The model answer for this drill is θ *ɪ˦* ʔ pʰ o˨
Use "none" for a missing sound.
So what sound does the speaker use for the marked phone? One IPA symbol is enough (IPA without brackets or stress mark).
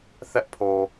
ɛ˦